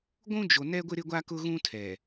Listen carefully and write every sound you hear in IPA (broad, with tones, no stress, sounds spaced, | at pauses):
ɡʷ ũ˦ d͡ʒ o˨ n ɛ˦ ɡʷ ɪ˦ ɾ ɪ˦ ɡʷ a˦ k ʊ˦ ɣ ũ˦ tʰ ɛ˨